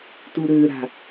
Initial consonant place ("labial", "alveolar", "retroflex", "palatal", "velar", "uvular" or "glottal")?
alveolar